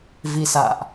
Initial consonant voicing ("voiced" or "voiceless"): voiced